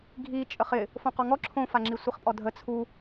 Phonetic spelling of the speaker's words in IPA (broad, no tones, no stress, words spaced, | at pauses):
ɡʱi t͡ʃʼəχɪ | fõqɔŋɔ ǁʰõfaŋ͡ǁi sʷiχpʼɔdʱə t͡sʰu